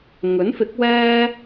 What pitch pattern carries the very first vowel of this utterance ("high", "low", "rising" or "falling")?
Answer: rising